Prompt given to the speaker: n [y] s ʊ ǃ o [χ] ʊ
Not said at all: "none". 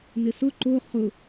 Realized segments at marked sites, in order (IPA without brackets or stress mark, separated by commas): ɪ, χ